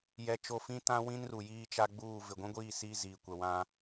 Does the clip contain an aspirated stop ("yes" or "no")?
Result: no